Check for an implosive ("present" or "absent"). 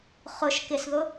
absent